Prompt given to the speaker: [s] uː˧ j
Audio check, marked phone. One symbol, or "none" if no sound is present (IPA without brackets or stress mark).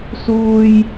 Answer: s